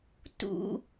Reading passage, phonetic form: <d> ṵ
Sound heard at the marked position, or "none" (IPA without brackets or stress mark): t